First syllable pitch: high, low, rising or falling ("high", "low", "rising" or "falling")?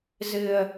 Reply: low